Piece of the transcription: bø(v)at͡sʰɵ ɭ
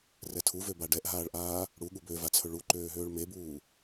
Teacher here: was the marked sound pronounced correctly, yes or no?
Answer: yes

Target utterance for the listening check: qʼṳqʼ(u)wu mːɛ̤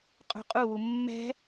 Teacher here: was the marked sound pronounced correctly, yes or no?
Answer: yes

